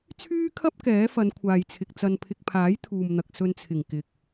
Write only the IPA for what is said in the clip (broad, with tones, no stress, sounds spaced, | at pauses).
t͡sʰ yː˥ kʰ ɐ˥ p̚ k ɛː˨˥ f ɐ˨˧ n kʷʰ aː˨ j t͡sʰ ɪ˨ k̚ t͡s ɐ˨ n pʰ ɪ˨ k̚ pʰ aː˨˥ j t̪ʰ uː˨ m n̪ ɐ˨ k̚ s ɵ˨ n t͡sʰ ɪ˨˩ ŋ k ɪ˨ k̚